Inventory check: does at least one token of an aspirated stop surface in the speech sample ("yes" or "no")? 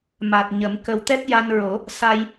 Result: no